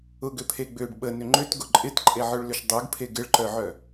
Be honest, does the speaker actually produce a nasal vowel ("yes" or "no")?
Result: no